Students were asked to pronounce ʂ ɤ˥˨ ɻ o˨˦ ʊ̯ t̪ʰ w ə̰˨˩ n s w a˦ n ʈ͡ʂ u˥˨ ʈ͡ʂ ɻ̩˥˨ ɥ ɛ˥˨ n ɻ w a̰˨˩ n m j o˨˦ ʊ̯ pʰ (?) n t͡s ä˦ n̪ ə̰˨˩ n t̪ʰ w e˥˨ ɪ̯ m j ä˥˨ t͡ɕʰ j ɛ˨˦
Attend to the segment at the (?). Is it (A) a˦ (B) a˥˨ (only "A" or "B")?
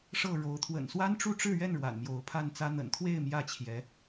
B